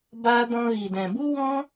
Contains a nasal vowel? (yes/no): yes